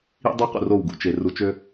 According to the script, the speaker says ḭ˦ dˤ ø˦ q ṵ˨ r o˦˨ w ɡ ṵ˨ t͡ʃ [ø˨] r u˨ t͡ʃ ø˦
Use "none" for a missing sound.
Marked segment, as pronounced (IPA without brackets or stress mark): e˨